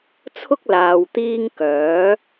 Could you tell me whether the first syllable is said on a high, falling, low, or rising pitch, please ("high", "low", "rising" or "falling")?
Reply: high